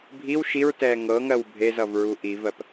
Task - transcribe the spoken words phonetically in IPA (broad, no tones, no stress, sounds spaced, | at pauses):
bʱ i w ʃ i ɹ t ɛː ŋ ɤ ŋ ɜ w bʱ e z ʌ v ɹ u ʔ i v ɜ p